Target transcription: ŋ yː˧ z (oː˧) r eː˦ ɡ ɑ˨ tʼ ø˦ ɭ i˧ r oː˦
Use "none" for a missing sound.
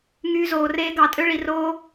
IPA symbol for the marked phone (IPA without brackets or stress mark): oː˨